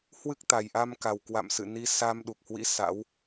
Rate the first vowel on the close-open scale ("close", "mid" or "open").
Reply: close